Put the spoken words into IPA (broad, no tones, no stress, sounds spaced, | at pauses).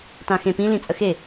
t ã x ẽ p ĩ l ĩ t͡sʼ ə x e